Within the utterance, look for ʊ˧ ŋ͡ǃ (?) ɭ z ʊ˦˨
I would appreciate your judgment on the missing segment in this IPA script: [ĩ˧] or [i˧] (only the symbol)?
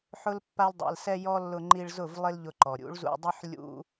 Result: i˧